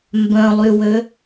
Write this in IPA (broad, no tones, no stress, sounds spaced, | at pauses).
m b œ̃ lˠ y w ø